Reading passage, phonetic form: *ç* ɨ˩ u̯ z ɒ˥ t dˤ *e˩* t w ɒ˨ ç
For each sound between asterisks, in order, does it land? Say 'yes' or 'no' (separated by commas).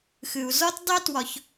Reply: no, no